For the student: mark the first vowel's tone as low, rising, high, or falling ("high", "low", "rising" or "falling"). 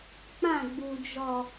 falling